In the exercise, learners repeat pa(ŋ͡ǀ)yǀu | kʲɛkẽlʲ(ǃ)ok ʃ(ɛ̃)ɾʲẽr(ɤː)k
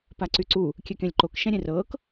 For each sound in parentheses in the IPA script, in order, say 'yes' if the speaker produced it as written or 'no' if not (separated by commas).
no, yes, yes, yes